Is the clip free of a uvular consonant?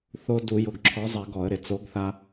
yes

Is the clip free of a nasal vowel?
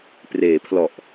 yes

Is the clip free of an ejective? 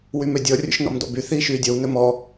yes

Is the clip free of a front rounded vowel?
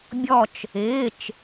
yes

